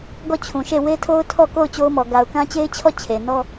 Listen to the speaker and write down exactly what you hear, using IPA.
ɡ ɔ˦˨ t͡ɕʰ ũ˨ ʃ e˦˨ w e˦ tʰ o˦ ʊ̯ tʰ ɔ˦˨ k o˦˨ ʊ̯ t͡ɕ o˦ ʊ̯ m ɔ˨ ɡ a˨ ʊ̯ k ã˦ t͡ɕ e˦ ɪ̯ t͡ɕʰ ɔ˦˨ t͡ɕʰ e˨ n ɔ˦

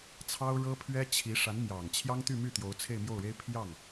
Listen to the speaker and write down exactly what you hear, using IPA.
t͡sʰ ɑ˥ ʊ̯ ɻ ɤ˥ pʰ ɥ ɛ˥ t͡ɕʰ i˧˥ ʂ a˧˥ n m j ɑ˨˩ ŋ t͡ɕʰ j ɑ˥ ŋ t̪ y˥˧ m y˥˩ t̪ j o˧˥ ʊ̯ t͡sʰ e˥˧ ɪ̯ m j o˥˩ ʊ̯ ɻ e˥ ɪ̯ pʰ j ɑ˥˩ ŋ

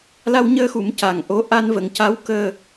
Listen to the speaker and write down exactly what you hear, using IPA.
l a˧ w ɲ əː˧ x u˨˩˦ m c a˨˩ ŋ ʔ o˧˥ ʔ a˧ n v ə˨˩˦ ŋ c a˧˥ w k əː˧

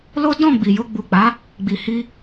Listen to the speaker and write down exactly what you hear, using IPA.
l o˦ d ɔ̃˦˨ ɡ͡b i˨ j o˧ ɡ͡b u˨ k͡p a˨˦ | ɡ͡b i˨ h i˧

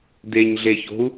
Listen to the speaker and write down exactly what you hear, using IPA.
d̪ e ɲ ɮ e ç o̤ u̯

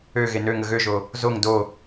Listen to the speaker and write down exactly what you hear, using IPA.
ø ɣ e n ø ŋ ə ɣ ø ʒ o | z o ŋ d o

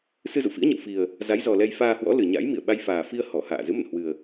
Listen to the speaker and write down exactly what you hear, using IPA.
s ɨ˧ z ṵ˧˨ f ḭ˧˥ ə̯ ɲ ə̰˧˨ w f i˨˩ ə̯ | z a˨˦ j z ɔ˨˩ l ɛ˧ j f aː˧ h w ɔ̰˧˥ l ɨ˨˩ ɲ a̰˧˥ j m ḭ˧˨ ə̯ ɓ a˧ j f aː˨˩ f i˧ ə̯ h ɔ˧˩ h a̰ː˧˨ z ɨ˨˦ m ə̰˧˨ n h w ɨ˨˩ ə̯

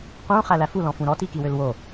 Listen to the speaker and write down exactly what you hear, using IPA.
q ũ χ æ l æ f u l ɔ̃ f ũ ɾ ɔ t i k i w ø l w o

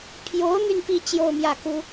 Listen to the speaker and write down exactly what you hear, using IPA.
pʰ j o˧˥ ʊ̯ n̪ y˧ n p i˥˧ t͡ɕ j o˥˧ ʊ̯ m j ä˥˩ k u˥

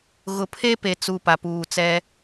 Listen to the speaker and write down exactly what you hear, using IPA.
ɣ ʊ˨ pʰ e˦ p e˨ t͡s u˨ p a˨ p uː˨ t͡s ɛ˦

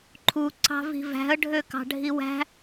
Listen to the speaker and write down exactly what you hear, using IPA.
ǃʰ u ǀ ɑ̤ v i̤ v æ̤ ə̯ ɖʱ ø k ɑ̤ ɖʱ i w æ̤

